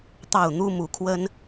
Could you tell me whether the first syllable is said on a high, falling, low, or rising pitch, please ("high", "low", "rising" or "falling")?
falling